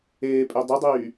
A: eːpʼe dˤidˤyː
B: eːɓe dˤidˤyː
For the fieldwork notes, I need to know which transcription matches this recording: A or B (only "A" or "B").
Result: A